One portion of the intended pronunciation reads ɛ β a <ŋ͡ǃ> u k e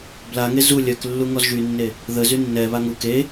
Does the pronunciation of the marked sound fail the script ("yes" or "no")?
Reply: yes